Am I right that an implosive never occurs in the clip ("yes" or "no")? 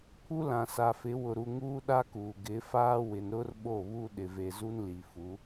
no